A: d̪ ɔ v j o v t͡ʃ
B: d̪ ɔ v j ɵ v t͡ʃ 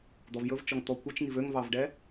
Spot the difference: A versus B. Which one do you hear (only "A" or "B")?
B